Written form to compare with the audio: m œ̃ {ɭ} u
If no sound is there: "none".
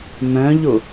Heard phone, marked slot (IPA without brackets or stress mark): ʎ